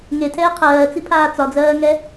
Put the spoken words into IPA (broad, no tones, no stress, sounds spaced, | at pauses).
ŋ e tʰ ɛː qʰ ɜː t͡s i pʰ aː t͡s ɒ d͡z ɜː ŋ ɛ